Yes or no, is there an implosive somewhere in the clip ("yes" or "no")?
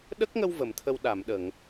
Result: yes